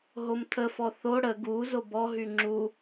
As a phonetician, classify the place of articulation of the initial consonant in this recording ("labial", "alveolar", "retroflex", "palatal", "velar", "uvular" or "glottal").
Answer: glottal